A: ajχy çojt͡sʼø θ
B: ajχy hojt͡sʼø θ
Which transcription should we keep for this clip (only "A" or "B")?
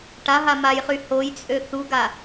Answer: B